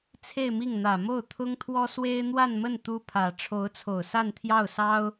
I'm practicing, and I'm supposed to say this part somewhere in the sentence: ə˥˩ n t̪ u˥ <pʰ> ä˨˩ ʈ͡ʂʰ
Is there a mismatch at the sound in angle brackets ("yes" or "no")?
no